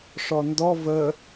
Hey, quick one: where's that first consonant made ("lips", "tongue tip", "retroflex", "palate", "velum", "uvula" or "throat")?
retroflex